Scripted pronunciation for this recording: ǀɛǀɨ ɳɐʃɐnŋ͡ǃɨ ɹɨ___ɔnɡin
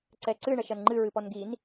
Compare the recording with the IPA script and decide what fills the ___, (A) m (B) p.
B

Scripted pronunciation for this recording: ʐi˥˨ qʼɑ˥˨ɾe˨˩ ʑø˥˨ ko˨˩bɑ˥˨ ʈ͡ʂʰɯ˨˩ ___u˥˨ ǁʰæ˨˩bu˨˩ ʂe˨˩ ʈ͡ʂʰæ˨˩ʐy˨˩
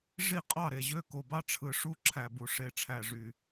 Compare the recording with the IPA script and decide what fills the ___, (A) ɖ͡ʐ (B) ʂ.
B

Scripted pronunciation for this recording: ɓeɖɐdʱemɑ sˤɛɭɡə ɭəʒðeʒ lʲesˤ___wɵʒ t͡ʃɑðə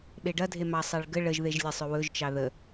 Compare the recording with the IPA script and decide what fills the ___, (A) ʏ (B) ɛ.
A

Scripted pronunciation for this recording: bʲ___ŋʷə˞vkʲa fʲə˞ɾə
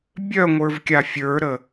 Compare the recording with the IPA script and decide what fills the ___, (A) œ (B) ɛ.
A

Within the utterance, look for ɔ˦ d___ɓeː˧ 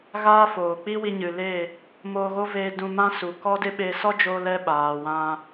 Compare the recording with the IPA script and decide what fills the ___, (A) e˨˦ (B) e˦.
B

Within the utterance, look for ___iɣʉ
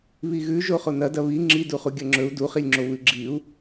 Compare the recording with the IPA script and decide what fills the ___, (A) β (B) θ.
A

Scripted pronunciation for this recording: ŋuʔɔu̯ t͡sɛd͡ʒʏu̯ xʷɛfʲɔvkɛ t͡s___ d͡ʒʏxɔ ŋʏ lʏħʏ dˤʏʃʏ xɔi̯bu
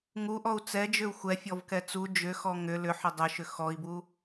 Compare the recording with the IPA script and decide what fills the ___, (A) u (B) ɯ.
A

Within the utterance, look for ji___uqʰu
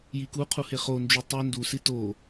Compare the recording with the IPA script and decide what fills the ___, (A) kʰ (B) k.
B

